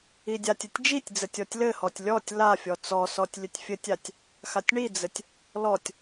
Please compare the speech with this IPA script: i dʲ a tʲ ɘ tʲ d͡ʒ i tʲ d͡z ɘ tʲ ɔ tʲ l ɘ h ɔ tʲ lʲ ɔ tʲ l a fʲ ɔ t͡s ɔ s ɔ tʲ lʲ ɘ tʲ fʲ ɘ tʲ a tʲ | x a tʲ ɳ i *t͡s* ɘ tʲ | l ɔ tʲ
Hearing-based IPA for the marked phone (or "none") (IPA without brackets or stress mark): d͡z